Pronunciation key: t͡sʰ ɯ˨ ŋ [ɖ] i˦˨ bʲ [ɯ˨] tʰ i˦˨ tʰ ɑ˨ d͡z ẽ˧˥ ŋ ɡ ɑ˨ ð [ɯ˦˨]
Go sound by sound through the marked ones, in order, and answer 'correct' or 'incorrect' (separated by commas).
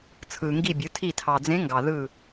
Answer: incorrect, incorrect, correct